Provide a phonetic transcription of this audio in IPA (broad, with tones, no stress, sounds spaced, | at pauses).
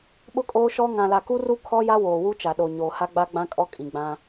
ɓ ʊ˦ kʼ oː˦ ʃ ɔ˦ ŋ ã˨ l a˨ k u˦ r u˦ kʰ ɔ˦ j a˦ w oː˨ w u˦ t͡ʃ a˨ ɗ o˨ ɲ oː˨ h a˦ ɡ͡b a˦ ɡ͡b ã˦ kʼ ɔ˦ kʼ ĩ˨ ɡ͡b ã˦